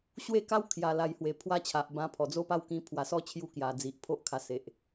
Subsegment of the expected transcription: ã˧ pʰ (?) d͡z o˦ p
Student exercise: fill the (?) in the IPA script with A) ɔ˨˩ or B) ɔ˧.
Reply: A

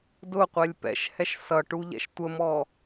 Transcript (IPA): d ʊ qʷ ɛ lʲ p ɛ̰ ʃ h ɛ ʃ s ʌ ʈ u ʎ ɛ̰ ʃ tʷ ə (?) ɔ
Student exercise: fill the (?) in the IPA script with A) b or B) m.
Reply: B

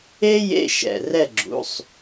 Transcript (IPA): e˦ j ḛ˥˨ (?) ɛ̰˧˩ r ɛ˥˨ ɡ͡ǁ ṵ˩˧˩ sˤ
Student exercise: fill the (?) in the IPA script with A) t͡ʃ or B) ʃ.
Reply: B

